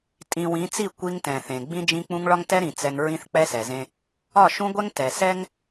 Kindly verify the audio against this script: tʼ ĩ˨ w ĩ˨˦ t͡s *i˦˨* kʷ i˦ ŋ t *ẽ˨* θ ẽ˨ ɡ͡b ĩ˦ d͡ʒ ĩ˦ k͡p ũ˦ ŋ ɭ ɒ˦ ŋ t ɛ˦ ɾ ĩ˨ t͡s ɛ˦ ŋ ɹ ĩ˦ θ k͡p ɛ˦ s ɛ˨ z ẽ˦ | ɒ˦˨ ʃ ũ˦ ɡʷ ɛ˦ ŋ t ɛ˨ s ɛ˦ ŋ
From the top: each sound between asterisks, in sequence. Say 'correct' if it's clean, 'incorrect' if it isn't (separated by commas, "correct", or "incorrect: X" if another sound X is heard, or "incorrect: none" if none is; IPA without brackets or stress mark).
correct, incorrect: ɛ̃˨